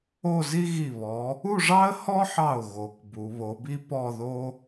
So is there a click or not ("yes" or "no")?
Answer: no